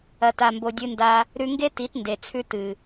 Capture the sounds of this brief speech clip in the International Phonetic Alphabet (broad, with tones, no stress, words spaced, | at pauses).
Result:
ɐ˨ta˨mbo˨ dʲɨ˧nda˧ | ɾʉ˧ŋɡe˦ ti˨˦tnde˨t͡sʰʉ˧ tɨ˨